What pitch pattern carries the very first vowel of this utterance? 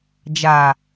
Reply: low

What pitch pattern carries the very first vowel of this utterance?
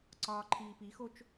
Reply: low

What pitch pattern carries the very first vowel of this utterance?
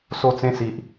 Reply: falling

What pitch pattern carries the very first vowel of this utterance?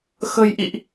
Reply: low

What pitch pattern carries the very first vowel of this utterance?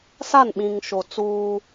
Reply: falling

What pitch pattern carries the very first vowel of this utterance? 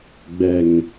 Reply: low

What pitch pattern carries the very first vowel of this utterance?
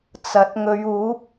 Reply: rising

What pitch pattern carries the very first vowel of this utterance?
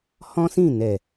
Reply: high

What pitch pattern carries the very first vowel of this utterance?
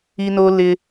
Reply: high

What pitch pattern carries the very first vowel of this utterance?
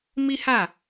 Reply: high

